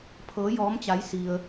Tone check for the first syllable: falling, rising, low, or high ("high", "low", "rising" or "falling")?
rising